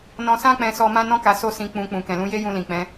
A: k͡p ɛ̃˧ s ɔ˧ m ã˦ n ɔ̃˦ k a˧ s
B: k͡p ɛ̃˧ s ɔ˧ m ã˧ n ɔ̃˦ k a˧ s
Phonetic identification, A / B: A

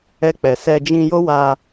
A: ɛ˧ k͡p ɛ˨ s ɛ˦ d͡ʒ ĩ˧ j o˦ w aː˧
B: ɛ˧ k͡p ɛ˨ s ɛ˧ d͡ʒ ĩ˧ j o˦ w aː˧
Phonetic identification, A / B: B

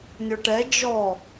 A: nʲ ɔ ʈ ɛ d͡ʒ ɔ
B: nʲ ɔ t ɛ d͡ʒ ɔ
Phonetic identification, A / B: A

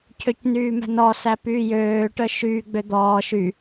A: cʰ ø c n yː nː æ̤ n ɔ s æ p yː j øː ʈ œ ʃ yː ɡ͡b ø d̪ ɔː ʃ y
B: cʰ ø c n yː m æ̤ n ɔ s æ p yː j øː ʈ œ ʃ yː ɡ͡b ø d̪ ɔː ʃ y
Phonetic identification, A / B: B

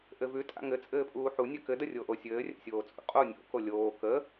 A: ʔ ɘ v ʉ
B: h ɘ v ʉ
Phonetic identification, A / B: A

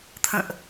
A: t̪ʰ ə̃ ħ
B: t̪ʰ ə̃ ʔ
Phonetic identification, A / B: B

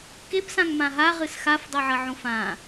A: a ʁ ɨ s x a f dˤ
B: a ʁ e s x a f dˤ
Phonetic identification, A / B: A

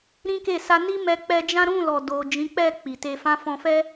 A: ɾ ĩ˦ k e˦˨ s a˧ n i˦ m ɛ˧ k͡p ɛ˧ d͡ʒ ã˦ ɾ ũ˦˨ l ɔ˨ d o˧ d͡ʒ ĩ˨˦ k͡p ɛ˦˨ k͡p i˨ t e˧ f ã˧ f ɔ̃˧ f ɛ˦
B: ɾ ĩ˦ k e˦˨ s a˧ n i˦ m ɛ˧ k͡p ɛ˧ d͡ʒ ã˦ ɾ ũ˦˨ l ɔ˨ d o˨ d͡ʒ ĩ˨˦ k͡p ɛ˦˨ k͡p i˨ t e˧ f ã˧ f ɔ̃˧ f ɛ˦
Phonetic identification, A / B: B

